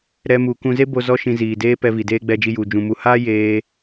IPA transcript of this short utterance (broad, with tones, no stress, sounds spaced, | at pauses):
ɾ ɛ˧ m u˨ k ũ˧ z e˦ b o˧ z ɔ˦ ʃ ĩ˧ z iː˨ d eː˦ p ɛ˧ v i˨ d eː˦ ɡ͡b ɛ˧ d͡ʒ i˧ j u˨ d͡ʒ ũ˨ m u˨ h aː˦ j eː˦